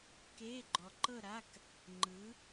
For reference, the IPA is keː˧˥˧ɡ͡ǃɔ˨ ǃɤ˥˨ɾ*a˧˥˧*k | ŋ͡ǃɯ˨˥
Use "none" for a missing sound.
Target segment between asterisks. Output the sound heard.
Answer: a˧˥˧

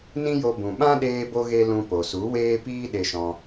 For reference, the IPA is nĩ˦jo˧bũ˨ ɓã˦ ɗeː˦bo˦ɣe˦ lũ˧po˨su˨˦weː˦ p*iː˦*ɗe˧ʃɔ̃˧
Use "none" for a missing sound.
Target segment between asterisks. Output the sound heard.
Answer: iː˦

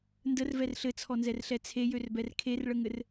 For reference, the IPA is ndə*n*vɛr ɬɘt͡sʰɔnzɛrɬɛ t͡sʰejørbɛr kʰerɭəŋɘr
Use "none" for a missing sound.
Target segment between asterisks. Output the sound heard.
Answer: r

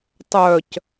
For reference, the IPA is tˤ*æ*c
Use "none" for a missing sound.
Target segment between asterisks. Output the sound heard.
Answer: œ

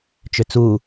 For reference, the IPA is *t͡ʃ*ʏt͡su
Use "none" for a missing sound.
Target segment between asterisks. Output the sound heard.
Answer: t͡ʃ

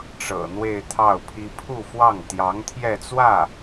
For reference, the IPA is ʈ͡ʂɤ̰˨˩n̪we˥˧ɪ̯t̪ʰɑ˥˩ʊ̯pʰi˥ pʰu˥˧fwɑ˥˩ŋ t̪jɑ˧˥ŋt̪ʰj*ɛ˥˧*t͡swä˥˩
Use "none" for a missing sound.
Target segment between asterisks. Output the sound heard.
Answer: ɛ˥˧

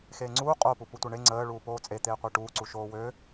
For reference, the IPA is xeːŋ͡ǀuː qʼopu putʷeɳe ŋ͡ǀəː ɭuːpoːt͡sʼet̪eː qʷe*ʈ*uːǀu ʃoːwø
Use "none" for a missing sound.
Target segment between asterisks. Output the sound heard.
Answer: ʈ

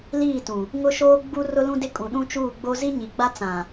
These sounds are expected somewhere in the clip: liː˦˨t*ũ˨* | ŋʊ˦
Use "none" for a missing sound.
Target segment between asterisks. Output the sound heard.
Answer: ũ˨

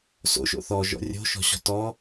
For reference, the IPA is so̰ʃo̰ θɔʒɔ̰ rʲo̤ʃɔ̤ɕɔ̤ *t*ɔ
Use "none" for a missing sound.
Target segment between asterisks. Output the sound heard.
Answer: t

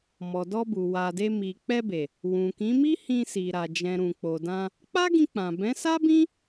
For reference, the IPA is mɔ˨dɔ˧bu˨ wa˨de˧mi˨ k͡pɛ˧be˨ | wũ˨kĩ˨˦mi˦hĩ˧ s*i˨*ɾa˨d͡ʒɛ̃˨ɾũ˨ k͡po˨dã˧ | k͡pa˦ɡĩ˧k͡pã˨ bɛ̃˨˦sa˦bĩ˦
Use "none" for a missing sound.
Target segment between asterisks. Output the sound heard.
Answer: i˨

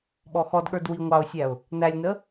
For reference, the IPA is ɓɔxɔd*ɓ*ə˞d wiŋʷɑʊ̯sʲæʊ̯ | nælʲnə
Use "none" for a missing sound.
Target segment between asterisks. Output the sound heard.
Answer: ɠ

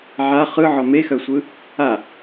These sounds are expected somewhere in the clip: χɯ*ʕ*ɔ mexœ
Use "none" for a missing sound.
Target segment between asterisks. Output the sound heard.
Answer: ʕ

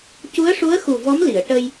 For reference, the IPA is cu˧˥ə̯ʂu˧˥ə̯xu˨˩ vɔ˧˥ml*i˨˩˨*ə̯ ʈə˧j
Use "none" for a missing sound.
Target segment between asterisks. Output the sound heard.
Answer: i˨˩˨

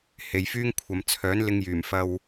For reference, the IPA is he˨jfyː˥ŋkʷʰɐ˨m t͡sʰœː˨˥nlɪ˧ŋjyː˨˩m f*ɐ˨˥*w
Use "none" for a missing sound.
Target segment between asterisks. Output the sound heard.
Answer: ɐ˧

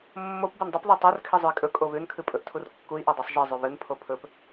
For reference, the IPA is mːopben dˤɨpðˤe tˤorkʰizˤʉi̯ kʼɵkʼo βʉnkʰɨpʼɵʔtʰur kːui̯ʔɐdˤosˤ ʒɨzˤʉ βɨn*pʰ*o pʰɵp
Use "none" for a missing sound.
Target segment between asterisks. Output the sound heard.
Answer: pʰ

